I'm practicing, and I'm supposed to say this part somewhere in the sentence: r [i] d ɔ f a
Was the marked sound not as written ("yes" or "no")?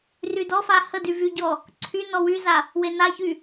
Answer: yes